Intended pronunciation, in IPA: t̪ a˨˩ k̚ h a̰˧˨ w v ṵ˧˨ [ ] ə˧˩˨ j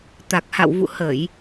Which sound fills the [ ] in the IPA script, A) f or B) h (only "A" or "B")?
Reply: B